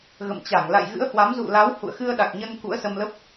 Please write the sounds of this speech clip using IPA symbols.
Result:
ɣ ə̰˧˨ m t͡ɕ a˧˩ ŋ l a̰˧˨ j ɣ ɨ̰˧˥ ə̯ h w a˨˦ m z ṵ˧˨ l a˨˦ w h ṵ˧˨ ə̯ x ɨ˧ ə̯ ɗ a˨˩ k̚ ɲ ə˧ n k ṵ˧˥ ə̯ s ə˧ m l ə˦˥ p̚

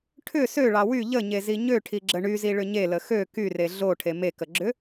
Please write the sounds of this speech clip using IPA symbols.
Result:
ʈʰ ʏ s ø ɭ ɑ w y ʎ ə ɲ e z i ɲ ø ʈʰ i ɡ͡ǁ ə ɳ y z i ɭ ʏ ɲ e l ə x ø k y r e ɮ o ʈʰ e m e k ə ɡ͡ǁ ʏ

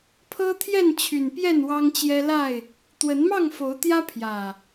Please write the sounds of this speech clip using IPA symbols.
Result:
pʰ ɤ˦ t̪ʰ j ɛ˥˨ n t͡ɕʰ y˨˩ n p j ɛ˥˨ n w ɑ˦ ŋ t͡ɕ j ɛ˦ l a˥˨ ɪ̯ | t̪ w ə˨˦ n m ɑ˥˨ ŋ f o˨˦ ʊ̯ t̪ j ä˦ pʰ j ä˨˩

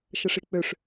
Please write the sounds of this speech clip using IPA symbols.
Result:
ʃ ə ʂ i k͡p ø ʂ

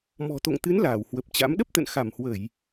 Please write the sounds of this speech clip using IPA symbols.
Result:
m ɔ̤˨˩ t̪ o̰˧˨ ŋ t̪ ɨ˨˦ n l aː˧˩ w h w ə˨˩ p̚ t͡ɕ a̰˧˥ m ɗ ə˦˥ p̚ t̪ ə̰˧˨ n x a˧˩ m h w ə˧˩˨ j

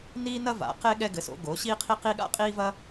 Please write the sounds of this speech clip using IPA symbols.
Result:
n iː˥ n ɐ˥ v a̰˩˥ q e˥ ɠ ɛ˥ ɡ ɘ˩˥ s o̰˩˥ ɡ oː˩˥ ɕ iː˥ qʰ i˥ q iː˥ ɠ a̰˥ qʼ iː˥ v ɐ˥

